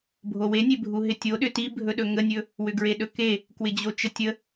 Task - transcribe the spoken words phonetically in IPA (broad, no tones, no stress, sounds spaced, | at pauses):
bʱ o w e nʲ e bʱ u ɦ ɪ tʲ o ɗ ʏ t i bʱ ɵ ɗ ɵ ŋ ə nʲ ɵ | w ʏ ɡ ɹ e ɗ ɵ k e | k w ɪ d͡ʑ o t͡ʃ ə tʲ ə